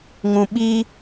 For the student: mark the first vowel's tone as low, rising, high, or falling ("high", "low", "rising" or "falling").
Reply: low